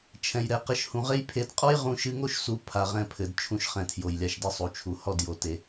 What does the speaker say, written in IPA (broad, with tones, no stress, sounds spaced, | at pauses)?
t͡ʃʰ ɛ̃˨ j ɾ ɛ˨ q ɘ˧ ʃ h ũ˨ ʁ e˦ j pʰ e˨˦ d qʼ ɔ˦ j ʁ ũ˧ ʃ ɨ˧ ŋ o˦ ʃ s u˦ pʰ a˧ ʁ ɛ̃˦ pʰ ɘ˨˦ d t͡ʃʰ ũ˧ ʃ χ ɛ̃˨ tʰ j o˨ j lʲ a˧ ʃ d ɨ˦ sˤ u˨ t͡ʃʰ u˨ h ɔ˦˨ d j o˨ t e˨